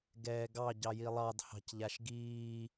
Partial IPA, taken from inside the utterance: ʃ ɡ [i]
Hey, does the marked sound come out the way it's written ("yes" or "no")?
no